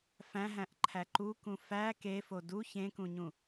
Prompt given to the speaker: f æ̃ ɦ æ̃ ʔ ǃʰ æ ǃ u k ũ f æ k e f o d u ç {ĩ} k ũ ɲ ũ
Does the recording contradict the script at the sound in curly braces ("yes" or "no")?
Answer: yes